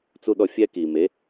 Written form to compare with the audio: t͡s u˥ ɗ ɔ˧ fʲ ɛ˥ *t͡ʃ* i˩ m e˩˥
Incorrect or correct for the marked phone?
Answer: incorrect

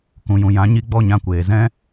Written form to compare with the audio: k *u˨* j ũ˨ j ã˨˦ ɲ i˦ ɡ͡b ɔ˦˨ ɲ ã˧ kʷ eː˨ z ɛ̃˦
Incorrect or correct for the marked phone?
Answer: incorrect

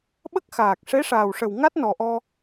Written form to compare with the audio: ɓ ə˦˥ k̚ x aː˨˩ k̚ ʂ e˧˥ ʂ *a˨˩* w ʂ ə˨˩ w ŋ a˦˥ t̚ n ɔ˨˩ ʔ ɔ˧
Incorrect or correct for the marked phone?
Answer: incorrect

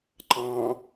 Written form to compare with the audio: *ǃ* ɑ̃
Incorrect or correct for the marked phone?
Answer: correct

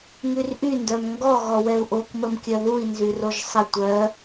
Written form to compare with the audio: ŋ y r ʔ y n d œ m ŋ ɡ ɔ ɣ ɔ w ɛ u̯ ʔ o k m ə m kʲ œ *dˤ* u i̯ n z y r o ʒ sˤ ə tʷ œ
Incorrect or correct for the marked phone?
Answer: incorrect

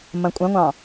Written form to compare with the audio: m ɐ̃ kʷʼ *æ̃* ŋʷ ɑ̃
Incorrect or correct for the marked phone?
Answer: incorrect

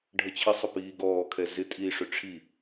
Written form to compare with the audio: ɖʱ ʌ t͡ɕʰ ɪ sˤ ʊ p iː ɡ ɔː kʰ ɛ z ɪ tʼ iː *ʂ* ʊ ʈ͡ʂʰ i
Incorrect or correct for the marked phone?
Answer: correct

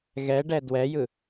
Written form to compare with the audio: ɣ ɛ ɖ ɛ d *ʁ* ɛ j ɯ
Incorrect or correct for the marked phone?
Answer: incorrect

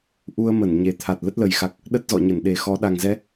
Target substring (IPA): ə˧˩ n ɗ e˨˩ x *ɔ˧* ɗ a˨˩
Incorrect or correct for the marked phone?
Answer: incorrect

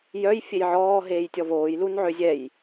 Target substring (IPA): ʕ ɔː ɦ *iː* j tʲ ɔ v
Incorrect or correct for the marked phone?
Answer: incorrect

